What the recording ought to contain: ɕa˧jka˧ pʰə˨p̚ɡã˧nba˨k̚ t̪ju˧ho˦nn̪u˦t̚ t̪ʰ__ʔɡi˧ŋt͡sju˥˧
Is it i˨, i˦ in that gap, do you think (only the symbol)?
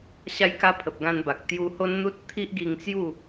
i˦